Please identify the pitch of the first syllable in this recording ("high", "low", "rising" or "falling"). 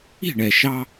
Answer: falling